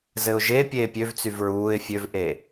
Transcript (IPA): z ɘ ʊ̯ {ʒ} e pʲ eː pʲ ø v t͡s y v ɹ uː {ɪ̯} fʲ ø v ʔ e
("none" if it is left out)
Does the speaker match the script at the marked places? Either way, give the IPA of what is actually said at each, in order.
ʒ, ɪ̯

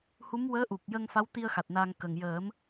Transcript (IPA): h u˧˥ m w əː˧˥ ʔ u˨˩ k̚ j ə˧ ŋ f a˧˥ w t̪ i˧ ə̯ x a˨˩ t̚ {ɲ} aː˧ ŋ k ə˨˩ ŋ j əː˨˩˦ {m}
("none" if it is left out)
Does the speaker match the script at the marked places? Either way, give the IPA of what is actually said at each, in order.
n, m

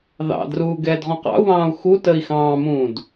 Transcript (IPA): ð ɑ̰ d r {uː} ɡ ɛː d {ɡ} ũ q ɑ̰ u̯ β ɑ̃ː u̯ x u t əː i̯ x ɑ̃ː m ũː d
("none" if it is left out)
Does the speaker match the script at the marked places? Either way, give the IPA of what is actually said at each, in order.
uː, ʁ

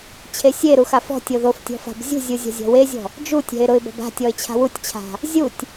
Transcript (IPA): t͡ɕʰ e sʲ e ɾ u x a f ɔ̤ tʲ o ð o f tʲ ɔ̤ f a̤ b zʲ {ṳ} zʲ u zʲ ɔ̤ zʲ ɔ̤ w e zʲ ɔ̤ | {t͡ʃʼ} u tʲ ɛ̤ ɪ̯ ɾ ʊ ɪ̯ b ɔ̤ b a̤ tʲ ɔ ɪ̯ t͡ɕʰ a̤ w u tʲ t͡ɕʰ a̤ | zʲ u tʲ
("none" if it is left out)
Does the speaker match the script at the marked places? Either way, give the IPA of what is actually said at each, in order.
ṳ, d͡ʒ

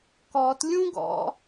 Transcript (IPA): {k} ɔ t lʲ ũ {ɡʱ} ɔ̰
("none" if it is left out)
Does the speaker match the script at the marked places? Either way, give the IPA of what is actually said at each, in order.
k, ɡ

